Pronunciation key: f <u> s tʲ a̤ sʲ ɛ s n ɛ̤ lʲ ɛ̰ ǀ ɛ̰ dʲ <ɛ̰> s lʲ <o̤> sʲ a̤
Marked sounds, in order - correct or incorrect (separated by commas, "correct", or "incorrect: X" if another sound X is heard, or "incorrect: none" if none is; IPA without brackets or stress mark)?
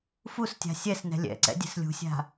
correct, incorrect: ɛ̤, incorrect: ṳ